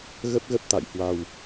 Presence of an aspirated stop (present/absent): absent